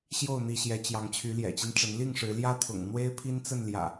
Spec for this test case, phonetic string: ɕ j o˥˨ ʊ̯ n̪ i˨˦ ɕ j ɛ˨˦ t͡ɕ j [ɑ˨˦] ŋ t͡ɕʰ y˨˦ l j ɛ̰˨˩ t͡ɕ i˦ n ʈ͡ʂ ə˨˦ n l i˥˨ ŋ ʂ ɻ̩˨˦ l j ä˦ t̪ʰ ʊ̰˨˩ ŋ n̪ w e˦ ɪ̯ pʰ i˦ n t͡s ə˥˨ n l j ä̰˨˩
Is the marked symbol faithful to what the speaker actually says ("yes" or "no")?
yes